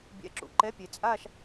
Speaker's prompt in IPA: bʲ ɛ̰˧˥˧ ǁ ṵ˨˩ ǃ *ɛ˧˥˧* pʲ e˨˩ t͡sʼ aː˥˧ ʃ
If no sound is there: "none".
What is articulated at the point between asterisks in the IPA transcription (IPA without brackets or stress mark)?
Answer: ɛ˧˥˧